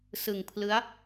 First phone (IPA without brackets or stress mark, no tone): s